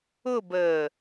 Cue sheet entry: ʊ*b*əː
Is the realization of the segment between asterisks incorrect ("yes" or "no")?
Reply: no